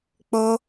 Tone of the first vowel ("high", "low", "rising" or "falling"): high